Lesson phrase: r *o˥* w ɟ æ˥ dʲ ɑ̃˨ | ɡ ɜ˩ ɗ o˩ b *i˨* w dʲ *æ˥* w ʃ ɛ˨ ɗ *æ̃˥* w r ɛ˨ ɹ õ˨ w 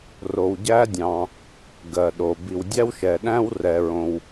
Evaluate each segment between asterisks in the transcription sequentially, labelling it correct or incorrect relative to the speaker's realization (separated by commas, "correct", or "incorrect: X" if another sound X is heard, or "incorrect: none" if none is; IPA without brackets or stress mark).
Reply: incorrect: o˨, correct, correct, correct